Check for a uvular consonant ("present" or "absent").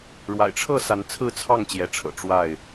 absent